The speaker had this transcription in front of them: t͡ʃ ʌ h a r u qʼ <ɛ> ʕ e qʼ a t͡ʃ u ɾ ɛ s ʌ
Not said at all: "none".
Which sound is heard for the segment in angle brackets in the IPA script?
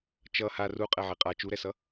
ɛ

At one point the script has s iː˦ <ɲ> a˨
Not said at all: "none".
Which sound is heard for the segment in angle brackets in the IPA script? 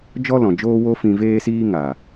ŋ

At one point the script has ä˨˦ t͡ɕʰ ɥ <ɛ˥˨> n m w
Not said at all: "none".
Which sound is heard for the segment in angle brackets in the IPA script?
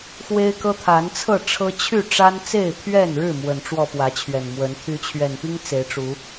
ɛ˨˩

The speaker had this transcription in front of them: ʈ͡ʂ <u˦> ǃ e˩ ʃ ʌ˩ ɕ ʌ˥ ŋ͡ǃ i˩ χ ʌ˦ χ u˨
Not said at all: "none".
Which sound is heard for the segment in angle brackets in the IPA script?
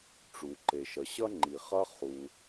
u˩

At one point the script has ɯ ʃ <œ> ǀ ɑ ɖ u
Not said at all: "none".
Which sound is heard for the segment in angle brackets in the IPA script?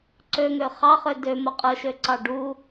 ø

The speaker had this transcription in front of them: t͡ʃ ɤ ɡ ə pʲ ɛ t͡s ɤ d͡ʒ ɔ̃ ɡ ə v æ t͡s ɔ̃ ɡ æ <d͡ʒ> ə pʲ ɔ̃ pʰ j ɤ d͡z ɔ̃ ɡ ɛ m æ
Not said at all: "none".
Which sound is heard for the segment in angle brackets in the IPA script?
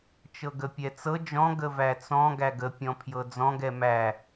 ɡ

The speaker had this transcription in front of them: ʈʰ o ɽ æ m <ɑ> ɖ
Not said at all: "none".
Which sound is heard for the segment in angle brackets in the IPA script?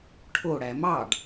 ɑ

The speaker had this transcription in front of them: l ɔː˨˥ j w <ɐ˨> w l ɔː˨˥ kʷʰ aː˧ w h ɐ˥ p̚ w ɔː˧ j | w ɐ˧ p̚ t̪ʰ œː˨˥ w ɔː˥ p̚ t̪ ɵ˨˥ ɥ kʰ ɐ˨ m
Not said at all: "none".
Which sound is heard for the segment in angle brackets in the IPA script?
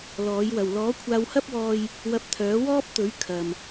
ɐ˨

